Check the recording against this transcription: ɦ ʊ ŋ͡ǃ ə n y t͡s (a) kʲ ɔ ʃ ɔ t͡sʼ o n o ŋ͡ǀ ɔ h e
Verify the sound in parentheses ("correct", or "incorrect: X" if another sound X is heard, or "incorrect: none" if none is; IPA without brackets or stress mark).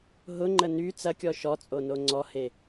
incorrect: ɐ